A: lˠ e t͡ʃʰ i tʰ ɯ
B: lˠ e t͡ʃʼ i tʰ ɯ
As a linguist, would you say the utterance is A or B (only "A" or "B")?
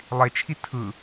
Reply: A